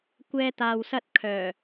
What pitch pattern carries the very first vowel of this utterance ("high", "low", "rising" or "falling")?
high